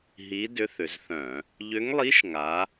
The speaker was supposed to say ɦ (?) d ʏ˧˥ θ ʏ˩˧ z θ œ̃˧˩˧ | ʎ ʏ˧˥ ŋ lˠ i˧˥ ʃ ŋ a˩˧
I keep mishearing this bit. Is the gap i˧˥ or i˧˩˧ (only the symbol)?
i˧˥